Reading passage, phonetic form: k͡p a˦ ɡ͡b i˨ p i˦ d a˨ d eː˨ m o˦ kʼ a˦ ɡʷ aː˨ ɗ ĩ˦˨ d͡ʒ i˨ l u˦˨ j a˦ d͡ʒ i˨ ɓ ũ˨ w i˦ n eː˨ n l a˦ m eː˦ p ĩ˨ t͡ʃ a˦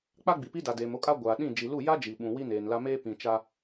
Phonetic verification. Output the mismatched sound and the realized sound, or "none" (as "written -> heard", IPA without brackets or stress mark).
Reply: none